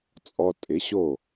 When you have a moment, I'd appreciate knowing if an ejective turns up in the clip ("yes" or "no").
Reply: yes